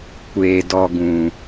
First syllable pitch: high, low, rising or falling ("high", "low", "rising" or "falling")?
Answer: low